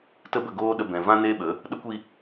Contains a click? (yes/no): no